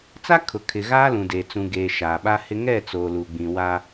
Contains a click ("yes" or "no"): no